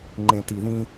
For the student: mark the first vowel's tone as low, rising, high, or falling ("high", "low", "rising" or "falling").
low